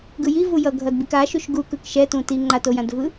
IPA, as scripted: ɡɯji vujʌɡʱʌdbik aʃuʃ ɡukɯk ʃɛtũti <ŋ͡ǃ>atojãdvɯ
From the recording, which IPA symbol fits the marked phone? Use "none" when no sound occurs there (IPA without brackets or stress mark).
ŋ͡ǃ